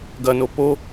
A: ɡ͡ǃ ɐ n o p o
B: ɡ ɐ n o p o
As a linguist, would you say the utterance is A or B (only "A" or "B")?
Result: B